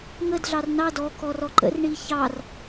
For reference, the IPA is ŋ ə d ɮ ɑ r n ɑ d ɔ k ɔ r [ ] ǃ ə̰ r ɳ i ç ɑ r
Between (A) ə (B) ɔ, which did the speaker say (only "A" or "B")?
B